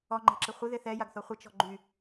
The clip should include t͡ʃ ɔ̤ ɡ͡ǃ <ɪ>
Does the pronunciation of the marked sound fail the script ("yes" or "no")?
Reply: yes